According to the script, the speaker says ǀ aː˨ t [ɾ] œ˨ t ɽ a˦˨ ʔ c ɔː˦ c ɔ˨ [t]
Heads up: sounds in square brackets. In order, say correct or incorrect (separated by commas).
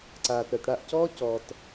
correct, correct